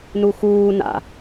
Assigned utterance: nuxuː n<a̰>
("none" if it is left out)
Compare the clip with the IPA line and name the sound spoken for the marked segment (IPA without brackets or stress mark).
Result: a̰